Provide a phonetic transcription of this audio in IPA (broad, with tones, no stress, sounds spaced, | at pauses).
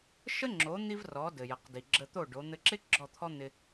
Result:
ʃ ə˥ ŋ͡ǁ o˩˥ n̪ i˥ v r ɔ˩˥ d ɘ˩ j ə˩ q d i˩ ɡ͡ǁ ə˧ t̪ o˥˩ ɖ o˩˥ n̪ ɘ˧ ǁ ɪ˥ ɡ͡ǁ ɔ˥˩ t̪ʰ ɔ˥ n̪ ɪ˧